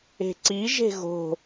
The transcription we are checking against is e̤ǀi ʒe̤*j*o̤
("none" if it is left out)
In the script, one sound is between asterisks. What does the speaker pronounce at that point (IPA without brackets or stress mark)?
ɣ